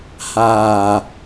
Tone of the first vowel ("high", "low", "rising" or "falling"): low